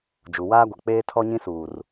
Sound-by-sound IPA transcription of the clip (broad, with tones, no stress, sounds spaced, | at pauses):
d͡ʒ u˨ w aː˦ ɡʷ ɛ˨ k͡p eː˦ tʰ ɔ˦ ɲ ĩ˦ s uː˨ r